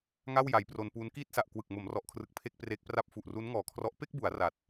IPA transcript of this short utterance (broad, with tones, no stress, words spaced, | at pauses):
ŋa˥˩wja˩˦jpro˧npuː˦˥n kiː˥˩t̚sa˨˩ʔkwɯ˨˩k̚ mo˩˦mrɔ˨˩ʔkʰrɯ˨˩k̚ pʰe˥˩k̚pre˦˥k̚pra˥˩p̚ fu˨˩ʔru˦˥nŋɔː˨˩kʰrɔ˦˥ʔ pe˥˩k̚bu˩˦a̯ ra˨˩t̚